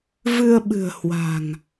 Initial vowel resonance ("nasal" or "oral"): oral